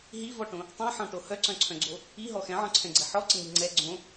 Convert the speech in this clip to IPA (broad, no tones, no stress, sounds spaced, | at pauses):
ɦ i v ɔ ʈ õ | tˤ ẽ ħ ɔ̃ ʈ o h œ ǀ œ̃ ǀʰ œ̃ ɡ͡ǀ o | i ɦ ɔ x ɛ̃ ʕ ɔ̃ ǀʰ ɛ̃ ɡ͡ǀ ɛ ħ ɔ ǀ ə ŋ i ŋ͡ǀ ɛ ɡ͡ǀ õ